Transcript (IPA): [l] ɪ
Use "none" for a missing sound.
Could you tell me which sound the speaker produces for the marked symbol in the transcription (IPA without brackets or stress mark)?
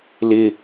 l